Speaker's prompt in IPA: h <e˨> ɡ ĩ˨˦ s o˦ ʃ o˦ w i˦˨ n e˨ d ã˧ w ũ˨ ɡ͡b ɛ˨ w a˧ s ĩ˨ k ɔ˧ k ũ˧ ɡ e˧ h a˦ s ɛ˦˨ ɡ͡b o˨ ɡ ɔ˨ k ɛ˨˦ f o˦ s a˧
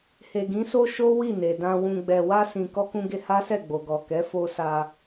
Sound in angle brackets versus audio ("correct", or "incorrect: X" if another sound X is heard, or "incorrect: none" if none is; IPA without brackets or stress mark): correct